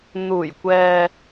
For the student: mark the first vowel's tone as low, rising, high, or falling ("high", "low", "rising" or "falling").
low